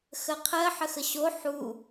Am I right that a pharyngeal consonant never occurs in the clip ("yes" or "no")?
no